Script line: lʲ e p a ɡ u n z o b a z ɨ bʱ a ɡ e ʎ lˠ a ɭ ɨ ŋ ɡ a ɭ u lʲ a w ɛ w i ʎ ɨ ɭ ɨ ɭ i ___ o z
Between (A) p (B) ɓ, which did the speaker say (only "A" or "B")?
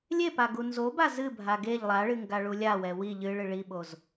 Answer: B